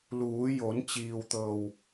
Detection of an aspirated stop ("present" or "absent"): absent